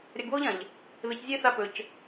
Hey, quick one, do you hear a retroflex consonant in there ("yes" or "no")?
no